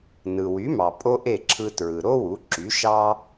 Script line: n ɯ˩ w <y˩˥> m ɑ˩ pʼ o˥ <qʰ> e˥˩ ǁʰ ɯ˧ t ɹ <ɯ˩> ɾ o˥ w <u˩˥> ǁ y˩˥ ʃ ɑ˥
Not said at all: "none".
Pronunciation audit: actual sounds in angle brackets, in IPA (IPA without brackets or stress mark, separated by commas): y˩˥, ʔ, ɯ˩, u˩˥